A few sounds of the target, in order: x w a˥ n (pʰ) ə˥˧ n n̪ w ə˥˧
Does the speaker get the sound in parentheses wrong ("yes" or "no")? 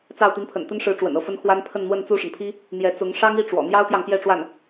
no